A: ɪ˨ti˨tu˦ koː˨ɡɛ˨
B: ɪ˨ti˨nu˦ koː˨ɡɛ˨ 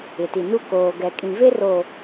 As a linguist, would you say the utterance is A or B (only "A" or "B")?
B